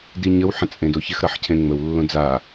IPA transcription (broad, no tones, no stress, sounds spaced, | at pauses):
d i ɲ ə w ħ ə̃ t͡sʼ ẽ d o ç ɪ x ɾ ʌ ħ cʰ ẽ ŋ͡m ə w lː õ d͡z a